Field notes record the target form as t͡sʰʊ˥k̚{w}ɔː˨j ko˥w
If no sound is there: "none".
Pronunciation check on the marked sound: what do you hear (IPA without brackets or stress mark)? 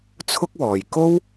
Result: w